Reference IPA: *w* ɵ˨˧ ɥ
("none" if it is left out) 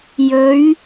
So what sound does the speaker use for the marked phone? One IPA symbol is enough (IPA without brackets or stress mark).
j